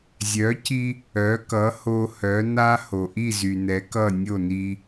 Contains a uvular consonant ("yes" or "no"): no